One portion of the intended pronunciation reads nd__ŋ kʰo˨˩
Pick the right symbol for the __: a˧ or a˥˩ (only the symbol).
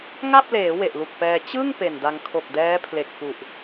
a˧